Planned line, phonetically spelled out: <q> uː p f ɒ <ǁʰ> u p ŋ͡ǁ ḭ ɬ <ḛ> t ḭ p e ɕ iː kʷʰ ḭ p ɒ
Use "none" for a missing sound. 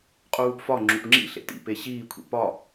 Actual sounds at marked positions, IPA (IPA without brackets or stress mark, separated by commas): qʼ, ŋ͡ǁ, ḛ